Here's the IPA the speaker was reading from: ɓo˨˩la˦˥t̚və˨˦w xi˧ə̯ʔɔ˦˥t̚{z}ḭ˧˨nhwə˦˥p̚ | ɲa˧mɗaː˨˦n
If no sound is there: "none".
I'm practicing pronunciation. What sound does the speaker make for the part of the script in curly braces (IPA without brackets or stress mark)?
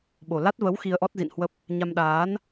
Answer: z